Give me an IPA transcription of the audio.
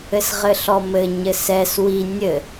ɘ s ʁ ɘ ɬ ɔ m ɘ ɲ ɘ s ɛ s w i nʲ ɘ

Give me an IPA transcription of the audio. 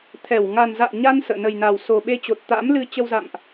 t̪ʰ ɛ˧˩ w ŋ a˨˩ n z a̰ː˧˨ ɲ a˧ n s ə̰ː˧˨ n ə˨˩ j n aː˨˩ w s o˨˩ ɓ e˧ t͡ɕ o˨˩ t̚ t̪ a̰ː˧˥ m l ɨ˧ t͡ɕ ə˧ w z a̰˧˨ m ʔ

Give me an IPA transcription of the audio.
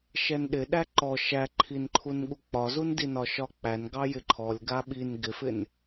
ʃ ɛ n ɗ ɪ ɗ æ ǃ ɔ ʃ æ ǃʰ i n ǃʰ u n ɠ u k͡p ɒ z u n d i n ɒ ʃ ɒ k͡p æ n ɡ ɑ j ɪ ǃʰ ɔ lʲ ɡ a ɓ i n ɡ ɪ f ɪ n

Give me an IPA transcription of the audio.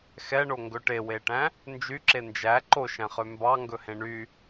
x ɛ ɳ o ŋ ɡ ɵ ʈ e w e ʈ æ̃ | n d͡ʒ y ǁ e n d͡ʒ æ ǃ o ʃ æ̃ χ ø m b ɑ ŋ ɡ ɵ h ẽ ɳ y

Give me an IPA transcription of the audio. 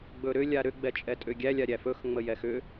ɡ͡b ɵ ɾ ʏ lʲ a ɾ ʏ ɡ͡b ɛ t͡ʃʼ ɛ tʼ ʏ ɡʲ æ lʲ a ɾʲ æ f ɵ x ŋ͡m ə j ɛ x ʏ

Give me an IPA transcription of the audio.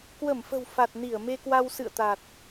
k w ə˧˩ m f ə̤˨˩ w f a˨˩ t̚ n i˧˩ ə̯ m e˧ k w a˧ w s ɨ̰˧˨ ə̯ t̪ a˨˩ t̚

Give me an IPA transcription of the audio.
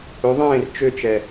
ɵ ðˤ ẽː r t͡ʃ ø t͡ʃ ɛ

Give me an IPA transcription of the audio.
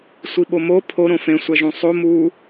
sʷ i ɓ o m o pʰ o ɾ õ f ẽ sʷ æ ʒ ũ sˤ o m u

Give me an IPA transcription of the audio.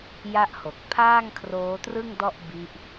j a˦˥ ʔ h o˨˩ k̚ pʰ aː˥˩ ŋ kʰ r oː˦˥ t r ɯ˥˩ ŋ d ɔ˥˩ ʔ b i˦˥ ʔ

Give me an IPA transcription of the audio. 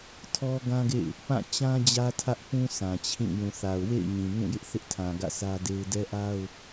tʰ ɔ˦ ɡ ã˦ ɡ ḛ˦˨ ɪ̯ | p ã˦˨ t͡ɕ ã˦ d͡ʑ ä˦ tʰ ä˦ ʔ p ũ˦ s ã˨ t͡ɕʰ ĩ˦˨ j ũ˨ θ a˨ ʊ̯ w ḛ˦˨ ɪ̯ ɲ ĩ˨ ŋ ũ˦˨ j ɪ˦ ʔ θ ɪ˦ ʔ tʰ ã˨ ɡ ä̰˦˨ s ä˦ d e˦ ɪ̯ d ɛ˦ ʔ a˦ ʊ̯

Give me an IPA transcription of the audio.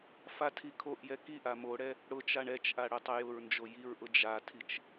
f a tʰ i kʰ o ʔ j ɛ k i ʔ a m o ɽ ɛ | ɽ ʊ t͡ʃ a ɳ ɛ t͡ʃ ʔ a ɽ ʊ tˤ ə j ʊ ɹ n d͡ʒ o j i ɹ ʔ ʊ d͡ʒ a tʰ i t͡ʃ

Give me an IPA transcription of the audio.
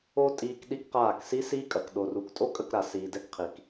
o˦ tʼ iː˧ k ɗ i˦ k q aː˦˨ k s i˦ s iː˦ kʼ ɐ˨ k ɗ o˨ r u˨ k tʼ o˦ kʼ ə˦˨ k ɾ a˨ s iː˨ d ɛ˧ k qʰ i˨ k

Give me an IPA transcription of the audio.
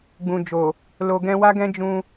ɡ͡b ũ˨ d͡ʒ o˨ | l o˨ ɡ ɛ̃˧ w a˦ ɡ ɛ̃˦ d͡ʒ ũ˧

